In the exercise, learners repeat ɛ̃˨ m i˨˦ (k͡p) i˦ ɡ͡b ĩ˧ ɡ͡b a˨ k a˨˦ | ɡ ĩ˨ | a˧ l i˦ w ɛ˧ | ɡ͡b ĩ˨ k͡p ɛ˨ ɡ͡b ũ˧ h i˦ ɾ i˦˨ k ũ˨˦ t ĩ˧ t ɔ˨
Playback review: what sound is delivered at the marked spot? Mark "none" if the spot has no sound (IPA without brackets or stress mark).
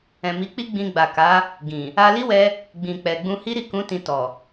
k͡p